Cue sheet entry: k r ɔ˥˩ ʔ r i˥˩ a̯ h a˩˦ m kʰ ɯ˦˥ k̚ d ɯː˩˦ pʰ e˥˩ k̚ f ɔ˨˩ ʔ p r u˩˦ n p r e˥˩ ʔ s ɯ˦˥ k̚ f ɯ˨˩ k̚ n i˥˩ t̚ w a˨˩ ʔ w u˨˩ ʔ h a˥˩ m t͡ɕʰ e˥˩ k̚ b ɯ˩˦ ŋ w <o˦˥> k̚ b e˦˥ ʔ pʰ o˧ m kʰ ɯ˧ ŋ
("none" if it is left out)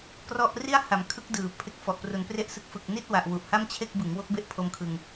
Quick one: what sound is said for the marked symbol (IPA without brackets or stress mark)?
o˦˥